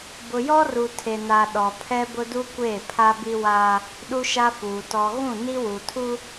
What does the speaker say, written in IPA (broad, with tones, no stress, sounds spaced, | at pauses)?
b ʊ˨ j ɔ˦ r u˨ tʰ e˨ n a˨ ɗ ɔ˨ pʰ ɛ˦ b ʊ˦ d u˦ kʷ eː˦˨ pʰ a˦ b i˦ w aː˦ | ɗ u˦ ʃ a˦ f uː˨ t ɔ˨ ɣ ũ˦˨ n i˦ w u˨ tʰ u˦